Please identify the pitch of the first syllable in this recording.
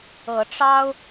rising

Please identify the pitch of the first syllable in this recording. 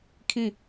falling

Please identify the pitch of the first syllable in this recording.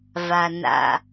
low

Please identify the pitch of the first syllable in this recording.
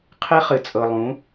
high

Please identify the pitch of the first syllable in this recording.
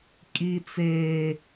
high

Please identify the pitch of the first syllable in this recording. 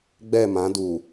falling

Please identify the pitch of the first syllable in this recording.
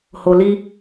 low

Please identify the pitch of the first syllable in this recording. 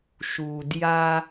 low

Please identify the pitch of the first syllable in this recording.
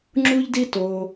high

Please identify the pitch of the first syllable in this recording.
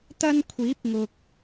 high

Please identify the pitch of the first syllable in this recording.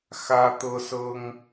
high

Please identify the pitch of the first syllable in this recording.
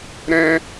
high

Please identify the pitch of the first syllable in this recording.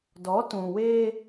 rising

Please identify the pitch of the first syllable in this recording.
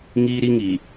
high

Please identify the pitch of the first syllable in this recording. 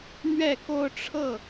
falling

